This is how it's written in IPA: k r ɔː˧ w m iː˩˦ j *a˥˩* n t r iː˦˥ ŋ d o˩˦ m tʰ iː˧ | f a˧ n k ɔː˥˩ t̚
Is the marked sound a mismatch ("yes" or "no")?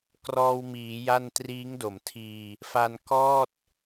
no